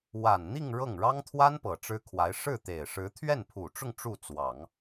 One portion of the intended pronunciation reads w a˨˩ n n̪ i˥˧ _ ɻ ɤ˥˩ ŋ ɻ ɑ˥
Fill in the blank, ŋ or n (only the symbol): ŋ